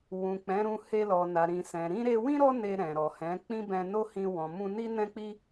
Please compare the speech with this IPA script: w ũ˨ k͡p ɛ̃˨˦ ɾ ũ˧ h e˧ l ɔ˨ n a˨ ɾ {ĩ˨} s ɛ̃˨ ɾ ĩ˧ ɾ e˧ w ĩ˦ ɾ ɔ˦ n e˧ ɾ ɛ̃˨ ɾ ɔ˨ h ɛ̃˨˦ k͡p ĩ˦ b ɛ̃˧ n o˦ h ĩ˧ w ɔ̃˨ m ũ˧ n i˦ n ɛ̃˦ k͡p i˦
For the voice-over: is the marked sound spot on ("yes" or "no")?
yes